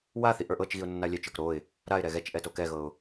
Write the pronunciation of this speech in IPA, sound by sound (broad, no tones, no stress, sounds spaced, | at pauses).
w a θ i ʔ ə˞ ʔ ɤ t͡ʃ ɣ i ʊ̯ nː a lʲ ɛ t͡ʃ ə˞ k ɾ o ɪ̯ | ɾ a ɪ̯ ɾ ɛ ɣ ɛ t͡ʃ ʔ ɛ t o k ɛ ɣ ɤ ʊ̯